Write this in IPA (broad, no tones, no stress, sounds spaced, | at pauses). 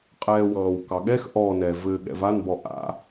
qʼ ɛː w ɑ̃ː w k ɑ ɠ ɛ x ʔ ɔ n ɛ v ɘ ɠ ɛ̰ v a n b ɔ ʔ a̰